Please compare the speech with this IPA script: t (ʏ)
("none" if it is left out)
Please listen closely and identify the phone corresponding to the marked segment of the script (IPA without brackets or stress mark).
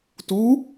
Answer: u